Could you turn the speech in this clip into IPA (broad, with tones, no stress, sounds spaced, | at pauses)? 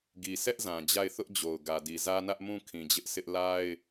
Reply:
ɡ i˨ sʰ ɛ˦ ʔ z ã˨ d͡ʑ a˦˨ ɪ̯ θ ʊ˦ ʔ d͡ʑ o˨ ʊ̯ ɡ ä˨ d i˨ z ä˦ n ä˦ ʔ m ũ˦ kʰ ĩ˨ d͡ʑ ɪ˦ ʔ sʰ ɪ˦ ʔ l a˦ ɪ̯